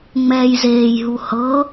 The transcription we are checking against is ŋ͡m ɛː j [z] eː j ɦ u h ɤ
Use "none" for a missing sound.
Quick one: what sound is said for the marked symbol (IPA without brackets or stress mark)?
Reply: z